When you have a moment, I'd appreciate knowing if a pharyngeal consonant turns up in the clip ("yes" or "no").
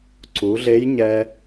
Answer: no